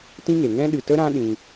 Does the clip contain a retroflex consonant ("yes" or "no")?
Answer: no